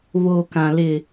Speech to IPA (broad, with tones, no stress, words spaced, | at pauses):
voː˦kã˦ lɪ˦